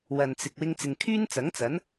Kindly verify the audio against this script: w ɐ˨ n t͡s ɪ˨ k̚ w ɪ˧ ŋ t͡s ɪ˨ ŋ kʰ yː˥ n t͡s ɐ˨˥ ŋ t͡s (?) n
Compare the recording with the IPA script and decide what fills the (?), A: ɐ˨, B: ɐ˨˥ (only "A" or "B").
B